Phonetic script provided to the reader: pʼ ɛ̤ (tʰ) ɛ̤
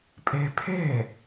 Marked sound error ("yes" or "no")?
yes